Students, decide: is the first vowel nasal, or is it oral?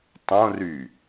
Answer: nasal